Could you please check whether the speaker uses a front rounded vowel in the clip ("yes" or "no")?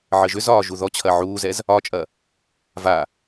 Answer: yes